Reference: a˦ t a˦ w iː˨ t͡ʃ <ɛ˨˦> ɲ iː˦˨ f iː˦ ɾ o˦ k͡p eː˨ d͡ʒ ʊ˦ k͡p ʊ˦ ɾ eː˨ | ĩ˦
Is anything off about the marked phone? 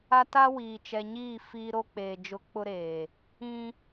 yes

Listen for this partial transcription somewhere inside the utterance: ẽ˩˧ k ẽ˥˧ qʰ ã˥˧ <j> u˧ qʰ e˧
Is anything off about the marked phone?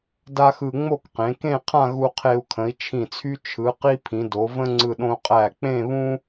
yes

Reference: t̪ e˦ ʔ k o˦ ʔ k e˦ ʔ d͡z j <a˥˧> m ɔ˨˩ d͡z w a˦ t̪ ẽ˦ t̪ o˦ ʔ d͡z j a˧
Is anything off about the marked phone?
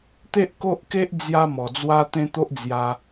yes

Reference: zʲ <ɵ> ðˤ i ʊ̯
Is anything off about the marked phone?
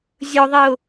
no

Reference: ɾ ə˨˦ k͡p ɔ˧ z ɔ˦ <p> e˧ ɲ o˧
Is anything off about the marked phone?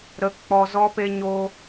no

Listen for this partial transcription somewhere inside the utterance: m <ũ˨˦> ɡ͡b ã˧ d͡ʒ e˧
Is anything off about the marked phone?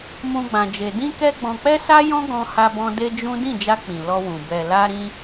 yes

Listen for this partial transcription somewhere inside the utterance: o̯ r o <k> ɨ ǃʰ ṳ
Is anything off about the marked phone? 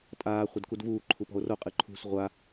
yes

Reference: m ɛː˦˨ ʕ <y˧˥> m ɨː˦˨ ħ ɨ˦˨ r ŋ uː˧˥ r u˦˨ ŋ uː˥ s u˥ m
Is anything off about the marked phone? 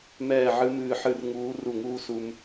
yes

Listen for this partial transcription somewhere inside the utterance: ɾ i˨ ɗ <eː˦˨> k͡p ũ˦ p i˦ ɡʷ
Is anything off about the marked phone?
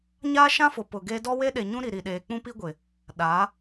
yes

